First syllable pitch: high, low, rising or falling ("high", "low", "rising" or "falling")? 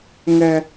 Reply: high